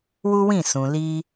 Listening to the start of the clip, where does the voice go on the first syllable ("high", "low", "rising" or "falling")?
high